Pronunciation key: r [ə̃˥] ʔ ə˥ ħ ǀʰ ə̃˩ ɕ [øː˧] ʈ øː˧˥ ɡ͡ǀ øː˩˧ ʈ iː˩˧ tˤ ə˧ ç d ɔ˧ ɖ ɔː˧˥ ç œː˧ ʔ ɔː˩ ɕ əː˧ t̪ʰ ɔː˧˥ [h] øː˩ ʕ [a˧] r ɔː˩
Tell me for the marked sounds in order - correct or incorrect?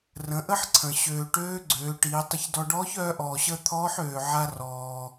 incorrect: ə̃˩˧, incorrect: øː˩, incorrect: ħ, correct

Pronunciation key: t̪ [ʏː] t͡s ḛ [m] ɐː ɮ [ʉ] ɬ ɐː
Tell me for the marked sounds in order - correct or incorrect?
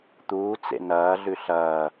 incorrect: uː, incorrect: n, correct

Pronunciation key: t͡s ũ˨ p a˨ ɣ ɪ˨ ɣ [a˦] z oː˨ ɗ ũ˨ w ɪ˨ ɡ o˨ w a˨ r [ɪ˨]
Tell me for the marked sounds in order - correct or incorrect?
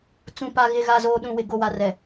incorrect: a˨, incorrect: ɛ˨

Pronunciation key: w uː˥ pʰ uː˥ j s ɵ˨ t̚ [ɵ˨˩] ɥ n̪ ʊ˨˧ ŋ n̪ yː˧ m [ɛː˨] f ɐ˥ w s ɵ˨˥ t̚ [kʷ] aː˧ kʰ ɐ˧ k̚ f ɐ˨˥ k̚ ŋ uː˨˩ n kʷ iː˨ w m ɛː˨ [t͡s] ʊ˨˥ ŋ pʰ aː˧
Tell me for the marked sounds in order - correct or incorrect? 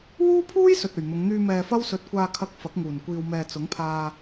correct, correct, correct, correct

